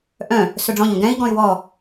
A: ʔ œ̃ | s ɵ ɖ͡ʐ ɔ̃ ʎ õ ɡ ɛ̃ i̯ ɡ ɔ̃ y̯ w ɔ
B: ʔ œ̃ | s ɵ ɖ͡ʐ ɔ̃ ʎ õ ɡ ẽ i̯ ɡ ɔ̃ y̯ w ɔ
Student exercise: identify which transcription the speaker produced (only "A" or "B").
A